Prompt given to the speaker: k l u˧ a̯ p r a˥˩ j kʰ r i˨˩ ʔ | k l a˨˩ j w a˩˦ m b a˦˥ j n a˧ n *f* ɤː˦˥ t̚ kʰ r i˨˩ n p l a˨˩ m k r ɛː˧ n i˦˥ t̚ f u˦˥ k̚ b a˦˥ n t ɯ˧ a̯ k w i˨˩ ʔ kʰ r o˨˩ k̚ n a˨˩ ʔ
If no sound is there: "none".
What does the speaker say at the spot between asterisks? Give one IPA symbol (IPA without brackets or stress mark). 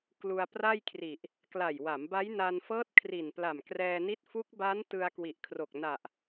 f